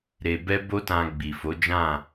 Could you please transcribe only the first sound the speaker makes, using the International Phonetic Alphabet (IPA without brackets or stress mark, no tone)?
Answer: ɾ